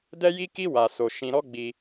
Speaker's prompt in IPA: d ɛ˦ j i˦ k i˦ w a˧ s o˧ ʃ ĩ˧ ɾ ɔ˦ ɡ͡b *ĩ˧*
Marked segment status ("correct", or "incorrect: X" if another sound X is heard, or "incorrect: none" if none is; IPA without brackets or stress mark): incorrect: i˧